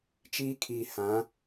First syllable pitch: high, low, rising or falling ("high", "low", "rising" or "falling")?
high